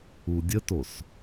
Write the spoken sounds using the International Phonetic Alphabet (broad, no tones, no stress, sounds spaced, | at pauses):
u dʲ ə t o s